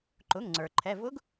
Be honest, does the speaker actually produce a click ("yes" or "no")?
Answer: yes